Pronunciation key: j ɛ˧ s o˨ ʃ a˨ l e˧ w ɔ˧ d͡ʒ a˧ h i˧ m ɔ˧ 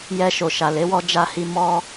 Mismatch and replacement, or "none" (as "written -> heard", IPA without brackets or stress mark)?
s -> ʃ